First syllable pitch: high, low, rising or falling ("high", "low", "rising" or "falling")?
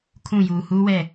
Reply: falling